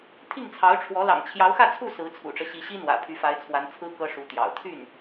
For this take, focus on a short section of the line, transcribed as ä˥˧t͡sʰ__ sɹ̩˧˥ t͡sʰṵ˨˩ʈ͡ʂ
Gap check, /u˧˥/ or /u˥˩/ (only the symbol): u˥˩